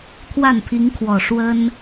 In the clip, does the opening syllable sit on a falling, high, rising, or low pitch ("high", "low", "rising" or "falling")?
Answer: falling